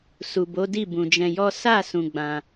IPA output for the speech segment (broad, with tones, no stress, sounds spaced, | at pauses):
s u˨ b o˨˦ d i˦˨ b ũ˨ d͡ʒ ɛ̃˧ j ɔ˦ s a˦˨ s ũ˧ ɡ͡b ã˧